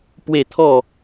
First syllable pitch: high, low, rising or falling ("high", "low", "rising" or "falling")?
falling